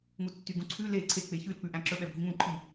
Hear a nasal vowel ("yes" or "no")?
yes